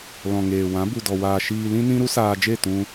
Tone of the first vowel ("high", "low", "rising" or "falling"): low